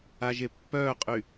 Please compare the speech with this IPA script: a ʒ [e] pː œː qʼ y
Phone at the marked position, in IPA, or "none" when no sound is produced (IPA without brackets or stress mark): e